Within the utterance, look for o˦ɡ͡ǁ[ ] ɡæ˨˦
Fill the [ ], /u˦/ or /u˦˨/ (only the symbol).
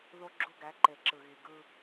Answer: u˦